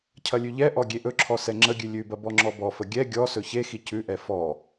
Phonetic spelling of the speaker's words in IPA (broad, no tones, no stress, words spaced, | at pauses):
cʰɐlʲʉʎɛʔɔ ɡʲeʔɵǁʰɔ sɛŋ͡ǁəɡʲʉ lʲʉbɐ bɔŋ͡ǁɔbɔfə ɡʲɛ ɡʲɔ sɵçexi cʉʔɛ fɔ